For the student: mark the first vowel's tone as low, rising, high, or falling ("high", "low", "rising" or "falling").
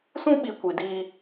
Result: high